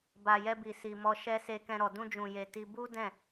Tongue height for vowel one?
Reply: low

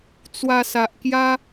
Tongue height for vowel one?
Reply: low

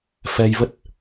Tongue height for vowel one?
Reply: mid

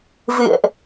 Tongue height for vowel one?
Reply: high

